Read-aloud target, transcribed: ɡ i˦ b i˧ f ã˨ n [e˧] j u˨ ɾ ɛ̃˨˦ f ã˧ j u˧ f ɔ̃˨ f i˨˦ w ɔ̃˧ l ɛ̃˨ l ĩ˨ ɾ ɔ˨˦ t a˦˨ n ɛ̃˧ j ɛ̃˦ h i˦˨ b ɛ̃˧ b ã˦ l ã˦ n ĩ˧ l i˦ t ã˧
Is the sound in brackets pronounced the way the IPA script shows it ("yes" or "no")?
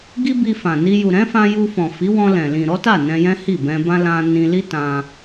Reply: no